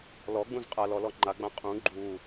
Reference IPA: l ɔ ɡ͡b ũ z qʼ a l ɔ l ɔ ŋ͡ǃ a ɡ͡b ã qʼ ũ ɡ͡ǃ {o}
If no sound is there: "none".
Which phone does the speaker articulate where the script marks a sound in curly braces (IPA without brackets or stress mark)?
u